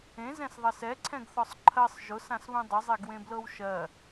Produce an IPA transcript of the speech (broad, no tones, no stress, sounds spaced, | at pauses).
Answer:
ẽ z ɛ̃ s ðˤ ɜ s ɛ ǀʰ ɛ̃ ɡ θ ɔ sˤ ǃʰ ɜ sˤ ʒ ʊ s ã s β ũ dˤ ə zˤ e ɡ w ẽ b l ɤ w ʃ ɜ